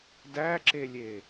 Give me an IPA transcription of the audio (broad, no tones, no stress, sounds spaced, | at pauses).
d æ ǁ e lʲ e